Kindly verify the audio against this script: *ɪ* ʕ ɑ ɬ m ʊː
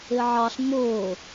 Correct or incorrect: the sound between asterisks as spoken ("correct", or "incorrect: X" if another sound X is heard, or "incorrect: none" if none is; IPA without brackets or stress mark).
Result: correct